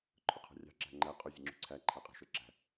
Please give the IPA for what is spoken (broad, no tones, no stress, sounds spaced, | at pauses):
ǃʰ ʊ qʰ ɑ̤ rʲ ɑ̤ ǁ æ̤ ŋ͡ǃ æ qʼ ʊ zʲ ə ŋ͡ǁ ṳ ǀʰ æ ǃʰ æ qʼ æ̤ ʃ ə˞ ǁ æ̤